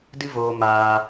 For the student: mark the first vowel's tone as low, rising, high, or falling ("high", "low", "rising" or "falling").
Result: high